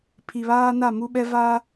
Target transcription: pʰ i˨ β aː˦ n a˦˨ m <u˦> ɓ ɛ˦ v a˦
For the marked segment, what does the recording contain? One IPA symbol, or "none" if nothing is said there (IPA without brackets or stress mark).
u˦